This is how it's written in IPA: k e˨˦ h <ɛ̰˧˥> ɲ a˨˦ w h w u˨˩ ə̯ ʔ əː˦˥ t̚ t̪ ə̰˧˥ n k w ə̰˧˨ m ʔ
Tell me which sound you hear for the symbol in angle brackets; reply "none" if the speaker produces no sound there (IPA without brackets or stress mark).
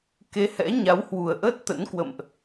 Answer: ɛ̰˧˥